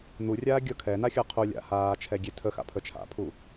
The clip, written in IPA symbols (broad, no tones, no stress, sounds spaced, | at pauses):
n̪ u rʲ aː ɡʲ ɤ kʰ ɛ n a xʲ ɤ qʰ u lʲ a̰ h aː t͡ʃʰ ɛ ɡʲ e tʰ ə x a̰ pʰ ə t͡ʃʰ a̰ pʰ u